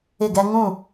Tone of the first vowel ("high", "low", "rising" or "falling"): falling